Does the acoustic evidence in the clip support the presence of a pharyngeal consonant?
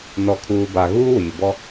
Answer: no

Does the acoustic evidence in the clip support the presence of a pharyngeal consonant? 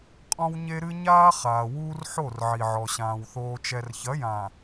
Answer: yes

